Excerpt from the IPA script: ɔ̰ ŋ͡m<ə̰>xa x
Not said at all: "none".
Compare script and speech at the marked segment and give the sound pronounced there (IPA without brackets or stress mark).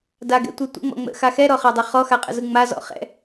ə̰